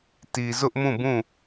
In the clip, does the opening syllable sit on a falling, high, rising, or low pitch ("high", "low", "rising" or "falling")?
low